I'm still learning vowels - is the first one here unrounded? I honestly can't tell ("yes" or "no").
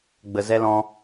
yes